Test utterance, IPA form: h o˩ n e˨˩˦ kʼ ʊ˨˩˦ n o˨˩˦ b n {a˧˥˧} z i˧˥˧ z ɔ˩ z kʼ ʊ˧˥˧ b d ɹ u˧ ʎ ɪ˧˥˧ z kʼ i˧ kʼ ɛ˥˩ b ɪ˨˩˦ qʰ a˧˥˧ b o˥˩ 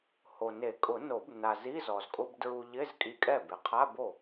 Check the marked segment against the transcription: incorrect: a˩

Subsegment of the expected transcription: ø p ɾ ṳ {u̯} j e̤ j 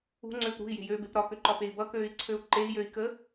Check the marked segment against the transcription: incorrect: i̯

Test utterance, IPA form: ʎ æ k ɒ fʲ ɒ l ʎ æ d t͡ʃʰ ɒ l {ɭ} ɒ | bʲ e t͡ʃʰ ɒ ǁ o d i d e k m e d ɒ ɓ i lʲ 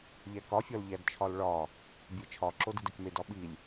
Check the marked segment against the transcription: correct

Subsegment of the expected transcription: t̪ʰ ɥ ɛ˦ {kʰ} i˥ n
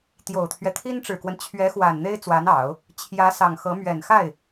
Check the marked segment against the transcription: incorrect: t̪ʰ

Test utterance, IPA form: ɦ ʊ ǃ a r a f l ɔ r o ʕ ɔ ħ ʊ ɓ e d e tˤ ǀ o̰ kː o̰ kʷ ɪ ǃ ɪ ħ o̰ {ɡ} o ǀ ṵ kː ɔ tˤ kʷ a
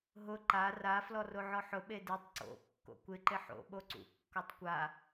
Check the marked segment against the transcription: incorrect: ɓ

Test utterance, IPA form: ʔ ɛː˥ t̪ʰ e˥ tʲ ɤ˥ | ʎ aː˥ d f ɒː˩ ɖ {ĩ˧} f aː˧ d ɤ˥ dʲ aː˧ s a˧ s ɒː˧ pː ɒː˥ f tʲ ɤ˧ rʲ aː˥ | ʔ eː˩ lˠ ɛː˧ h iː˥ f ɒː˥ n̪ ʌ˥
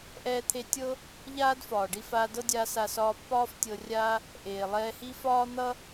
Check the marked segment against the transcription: incorrect: i˧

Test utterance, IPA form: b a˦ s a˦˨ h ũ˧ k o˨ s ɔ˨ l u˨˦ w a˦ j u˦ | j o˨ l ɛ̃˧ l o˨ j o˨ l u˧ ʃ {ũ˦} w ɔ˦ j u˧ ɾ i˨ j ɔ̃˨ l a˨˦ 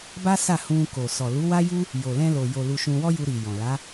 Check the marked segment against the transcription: incorrect: ũ˧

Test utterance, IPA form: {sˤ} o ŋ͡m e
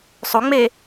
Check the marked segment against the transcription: correct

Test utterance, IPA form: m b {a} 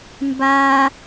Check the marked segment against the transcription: incorrect: aː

